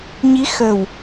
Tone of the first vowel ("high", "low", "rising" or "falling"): rising